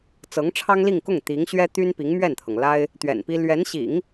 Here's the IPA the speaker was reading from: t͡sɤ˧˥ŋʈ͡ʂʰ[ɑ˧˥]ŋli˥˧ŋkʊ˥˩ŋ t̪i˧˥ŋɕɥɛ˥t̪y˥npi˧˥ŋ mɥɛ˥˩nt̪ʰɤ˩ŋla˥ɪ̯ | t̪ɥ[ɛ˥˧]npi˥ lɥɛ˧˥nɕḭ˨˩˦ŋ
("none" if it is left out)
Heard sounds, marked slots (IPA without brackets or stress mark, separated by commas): ɑ˥, ɛ̰˨˩